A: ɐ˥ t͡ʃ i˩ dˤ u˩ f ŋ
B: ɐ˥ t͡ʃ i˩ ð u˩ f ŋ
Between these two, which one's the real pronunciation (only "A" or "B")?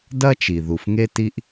B